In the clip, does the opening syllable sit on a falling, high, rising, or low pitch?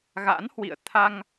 rising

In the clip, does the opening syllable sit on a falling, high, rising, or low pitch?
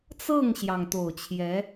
falling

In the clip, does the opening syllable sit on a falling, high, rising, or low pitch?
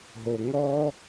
low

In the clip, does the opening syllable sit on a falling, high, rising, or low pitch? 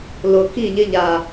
low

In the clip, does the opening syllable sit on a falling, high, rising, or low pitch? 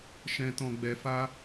low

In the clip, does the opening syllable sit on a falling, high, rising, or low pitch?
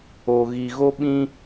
low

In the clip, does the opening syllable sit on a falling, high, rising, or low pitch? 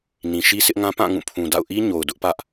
low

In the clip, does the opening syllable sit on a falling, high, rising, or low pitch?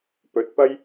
rising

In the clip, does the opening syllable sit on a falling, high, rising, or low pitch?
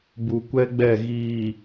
low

